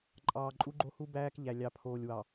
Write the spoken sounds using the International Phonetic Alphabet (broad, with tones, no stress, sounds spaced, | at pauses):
ǃʼ ɑː˨ ǃʼ u˦ ɡ͡ǃ o˦ h u˦ b æː˦ k ʎ æ˨ lʲ ɑ˨ pʰ oː˨ lʲ w ɑ˨